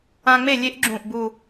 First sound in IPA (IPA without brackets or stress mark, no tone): ã